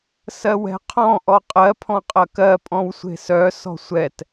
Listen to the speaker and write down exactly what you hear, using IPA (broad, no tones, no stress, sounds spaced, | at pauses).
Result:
s ɜ w ɛ̤ qʰ ɔ̃ ʔ ɔ qʼ ɜ pʰ ɔ̃ qʼ ɐ k ɜ pʼ ɔ̃ w sʷ e̤ s œ s ɔ̤ sʷ ɛ t